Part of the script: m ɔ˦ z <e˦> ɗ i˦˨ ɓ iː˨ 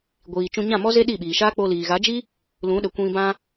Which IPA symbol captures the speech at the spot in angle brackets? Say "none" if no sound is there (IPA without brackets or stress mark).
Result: e˦